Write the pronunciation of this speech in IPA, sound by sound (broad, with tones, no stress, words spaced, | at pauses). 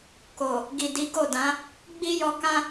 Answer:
ko˨ | ɡi˨di˨˦ɡo˦˨dã˨˦ | ɡ͡bi˦jɔ˧kã˦